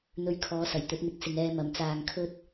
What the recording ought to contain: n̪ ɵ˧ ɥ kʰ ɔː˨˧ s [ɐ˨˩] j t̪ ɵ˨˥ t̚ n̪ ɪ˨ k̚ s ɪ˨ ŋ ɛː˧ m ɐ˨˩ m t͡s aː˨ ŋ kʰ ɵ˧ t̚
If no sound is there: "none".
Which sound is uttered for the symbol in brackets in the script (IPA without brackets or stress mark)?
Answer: ɐ˨˩